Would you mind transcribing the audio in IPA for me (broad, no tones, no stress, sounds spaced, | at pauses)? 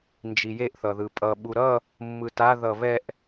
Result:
n d͡ʒ i j e ʔ θ ʌ ð ɯ pʼ ʌ ɓ u ɾ ʌ | mː ɯ t a ð ʌ β ɛ ʔ